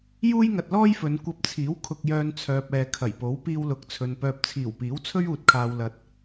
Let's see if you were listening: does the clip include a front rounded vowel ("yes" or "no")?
yes